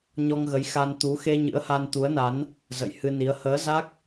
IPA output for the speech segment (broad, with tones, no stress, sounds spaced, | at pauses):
ɲ ɔ˧ ŋ ɣ ə˨˦ j x a˧ n t̪ u˨˦ x e˧ ɲ ɨ̰˧˥ ə̯ h a˧ n t̪ u˨˦ ə̯ n a˨˦ n | z ə̰˧˨ j h ɨ˧ n i˨˦ ə̯ h əː˨˦ z a˦˥ k̚